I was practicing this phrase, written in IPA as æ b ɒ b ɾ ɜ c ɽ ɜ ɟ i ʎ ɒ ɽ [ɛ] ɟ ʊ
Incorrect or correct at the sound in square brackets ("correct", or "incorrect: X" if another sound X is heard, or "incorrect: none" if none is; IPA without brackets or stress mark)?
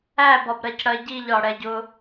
correct